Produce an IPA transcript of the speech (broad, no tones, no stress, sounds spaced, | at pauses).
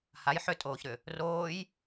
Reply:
h a j ħ ʏ tʼ oː ç ɾ ʏ | r oː j